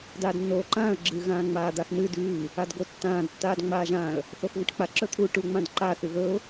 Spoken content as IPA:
d aː d nː oː ǃ ãː ə̯ ɡ͡ǁ ɨ ɣ ãː ŋ͡m aː d̪ a x n̪ ɨ d ʉː | a d ɡ o tː ãː d tː aː d ŋ͡m aː ʒ ãː ə̯ | θ o x ɣ ɨ ʈ k͡p a ǁ ɵ t̪ʰ u ʈ u ŋ͡m ã d ǃ a θ ʉ ɣ ɵ ʊ̯

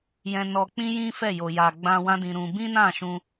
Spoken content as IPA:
j ɛ̃˧ n ɔ˧ k͡p ĩ˦ j ĩ˦ f ɛ˦˨ j o˨ j a˨ ɡ͡b ã˧ w ã˦ d ĩ˧ ɾ ũ˧ b ĩ˦ n ã˦˨ ʃ ũ˧

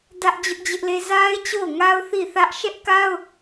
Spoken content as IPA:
d ä˦ ʔ d͡ʑ ʊ˦ ʔ d͡ʑ ɪ˦ ʔ l e˦ z a˦ ɪ̯ t͡ɕ o˦˨ ʊ̯ ŋ a˦ ʊ̯ θ i˦˨ θ ä˦ ʔ ʃ ɛ˦ ʔ k a˦ ʊ̯

